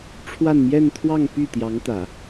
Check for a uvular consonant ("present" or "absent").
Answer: absent